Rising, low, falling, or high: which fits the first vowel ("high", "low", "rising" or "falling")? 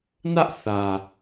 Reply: high